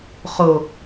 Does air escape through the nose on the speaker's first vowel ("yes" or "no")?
no